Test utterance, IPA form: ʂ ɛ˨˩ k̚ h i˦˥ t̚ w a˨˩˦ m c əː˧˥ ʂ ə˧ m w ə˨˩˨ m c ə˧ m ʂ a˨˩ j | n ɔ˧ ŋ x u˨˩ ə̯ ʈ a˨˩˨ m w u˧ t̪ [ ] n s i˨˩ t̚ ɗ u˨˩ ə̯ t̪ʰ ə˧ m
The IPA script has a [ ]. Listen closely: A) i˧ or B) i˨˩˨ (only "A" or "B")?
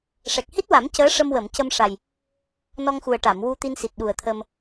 A